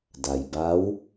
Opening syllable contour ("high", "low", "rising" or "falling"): low